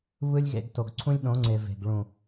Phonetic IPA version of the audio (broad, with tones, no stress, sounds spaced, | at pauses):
β ɯ˦ lʲ ɣ ḛ˧ ɡ t o˨ ɡ ǀʰ ũ˦ lʲ ɗ õ˨˦ ŋ͡ǀ e˨ v e̤˨ ɡ ɭ ũ˨